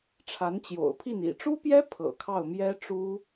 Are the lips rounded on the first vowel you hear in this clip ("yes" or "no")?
no